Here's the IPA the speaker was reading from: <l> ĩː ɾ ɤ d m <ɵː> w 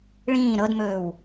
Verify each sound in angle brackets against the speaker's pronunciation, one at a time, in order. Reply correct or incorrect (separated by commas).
incorrect, correct